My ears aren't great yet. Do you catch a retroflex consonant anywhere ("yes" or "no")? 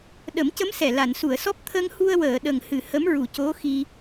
no